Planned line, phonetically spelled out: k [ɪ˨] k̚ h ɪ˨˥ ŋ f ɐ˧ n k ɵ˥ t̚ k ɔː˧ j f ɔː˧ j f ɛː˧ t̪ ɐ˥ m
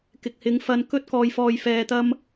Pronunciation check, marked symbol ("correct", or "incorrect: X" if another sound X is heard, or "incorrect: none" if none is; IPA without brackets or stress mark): correct